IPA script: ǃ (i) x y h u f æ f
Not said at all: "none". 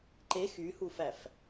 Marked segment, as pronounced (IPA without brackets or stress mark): e